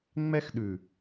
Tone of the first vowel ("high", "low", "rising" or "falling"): high